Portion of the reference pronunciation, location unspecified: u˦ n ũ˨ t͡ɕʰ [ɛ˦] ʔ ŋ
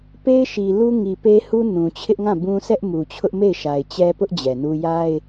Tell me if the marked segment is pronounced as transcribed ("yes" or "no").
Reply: no